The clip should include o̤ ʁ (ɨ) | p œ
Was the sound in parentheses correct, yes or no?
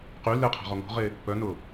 no